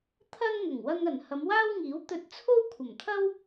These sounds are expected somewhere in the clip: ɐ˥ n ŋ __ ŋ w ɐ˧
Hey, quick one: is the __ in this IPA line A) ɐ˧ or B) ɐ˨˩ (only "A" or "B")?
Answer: B